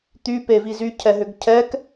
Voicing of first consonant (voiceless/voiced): voiceless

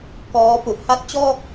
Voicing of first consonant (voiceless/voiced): voiceless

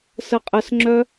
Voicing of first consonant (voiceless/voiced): voiceless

